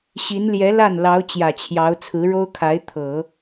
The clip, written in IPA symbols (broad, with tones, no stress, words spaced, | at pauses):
ɕi˧˥n ljɛ˧˥ la˥˩n lɑ˧˥ʊ̯ t͡ɕjä˨˩t͡ɕʰjɑ˧˥ʊ̯ t͡sʰɹ̩˧˥ɻo˥ʊ̯kʰa˧˥ɪ̯ t̪ʰɤ˨˩˦